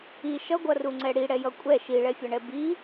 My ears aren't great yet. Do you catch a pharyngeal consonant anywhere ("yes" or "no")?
no